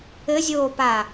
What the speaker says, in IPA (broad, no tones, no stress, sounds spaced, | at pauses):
ɘ zʲ oː p a